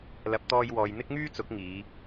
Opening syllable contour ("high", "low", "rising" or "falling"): rising